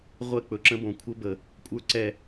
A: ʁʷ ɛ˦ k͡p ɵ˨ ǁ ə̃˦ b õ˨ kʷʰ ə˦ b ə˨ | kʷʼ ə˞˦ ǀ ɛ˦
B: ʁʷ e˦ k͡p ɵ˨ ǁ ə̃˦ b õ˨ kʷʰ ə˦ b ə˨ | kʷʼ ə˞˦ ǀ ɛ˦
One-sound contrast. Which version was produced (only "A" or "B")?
A